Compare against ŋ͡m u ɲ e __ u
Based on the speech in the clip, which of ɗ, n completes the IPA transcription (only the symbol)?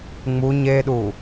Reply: ɗ